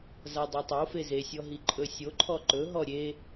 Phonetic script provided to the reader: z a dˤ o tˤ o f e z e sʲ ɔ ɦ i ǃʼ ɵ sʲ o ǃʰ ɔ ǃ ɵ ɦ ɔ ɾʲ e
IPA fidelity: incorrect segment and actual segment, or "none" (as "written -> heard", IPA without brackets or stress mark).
none